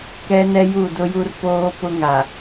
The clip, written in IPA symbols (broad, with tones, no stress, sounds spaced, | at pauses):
k ɛ˦ n ɛ˦ j u˦˨ d ʊ˦ j u˦ r p oː˦ p ʊ˦ ŋ a˨